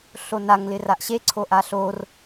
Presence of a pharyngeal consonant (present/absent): absent